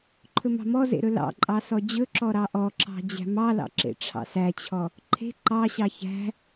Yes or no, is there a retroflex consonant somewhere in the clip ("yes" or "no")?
yes